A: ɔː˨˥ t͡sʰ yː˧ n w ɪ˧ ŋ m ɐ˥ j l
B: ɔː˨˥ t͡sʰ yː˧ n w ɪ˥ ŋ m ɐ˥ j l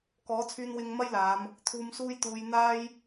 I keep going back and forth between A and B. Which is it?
A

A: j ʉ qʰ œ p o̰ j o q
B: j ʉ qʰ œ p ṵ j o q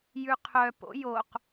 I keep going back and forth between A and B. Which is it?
A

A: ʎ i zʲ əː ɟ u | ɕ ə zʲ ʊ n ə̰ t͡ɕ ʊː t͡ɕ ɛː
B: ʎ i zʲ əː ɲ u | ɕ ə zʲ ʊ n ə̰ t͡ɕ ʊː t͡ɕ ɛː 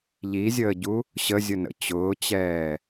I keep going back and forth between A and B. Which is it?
A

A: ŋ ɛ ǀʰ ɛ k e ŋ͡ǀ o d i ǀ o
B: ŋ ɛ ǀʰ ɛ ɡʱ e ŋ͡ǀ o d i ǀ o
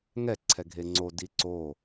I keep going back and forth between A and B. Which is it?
B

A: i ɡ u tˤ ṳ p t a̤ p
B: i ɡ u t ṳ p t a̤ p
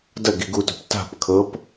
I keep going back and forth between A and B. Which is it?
B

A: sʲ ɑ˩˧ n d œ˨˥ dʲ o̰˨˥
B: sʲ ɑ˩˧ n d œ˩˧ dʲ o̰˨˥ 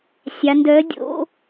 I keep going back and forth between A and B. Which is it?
A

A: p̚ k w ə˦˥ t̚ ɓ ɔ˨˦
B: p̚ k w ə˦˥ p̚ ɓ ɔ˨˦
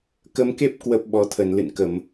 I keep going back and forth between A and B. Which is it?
B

